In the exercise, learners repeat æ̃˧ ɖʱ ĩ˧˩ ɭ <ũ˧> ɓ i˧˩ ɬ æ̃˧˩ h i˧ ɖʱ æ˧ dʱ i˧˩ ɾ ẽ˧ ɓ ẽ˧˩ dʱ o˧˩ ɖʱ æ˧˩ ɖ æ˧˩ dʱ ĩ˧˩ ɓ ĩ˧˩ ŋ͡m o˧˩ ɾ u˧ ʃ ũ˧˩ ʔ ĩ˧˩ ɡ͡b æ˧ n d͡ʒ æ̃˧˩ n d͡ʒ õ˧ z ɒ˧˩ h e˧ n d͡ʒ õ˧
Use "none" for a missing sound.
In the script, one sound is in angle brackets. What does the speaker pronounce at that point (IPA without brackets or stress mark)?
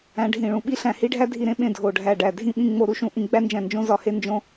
ũ˧˩